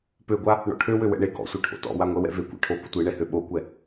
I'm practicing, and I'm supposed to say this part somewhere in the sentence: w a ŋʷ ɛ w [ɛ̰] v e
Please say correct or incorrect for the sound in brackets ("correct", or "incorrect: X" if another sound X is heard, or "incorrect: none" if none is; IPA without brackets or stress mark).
correct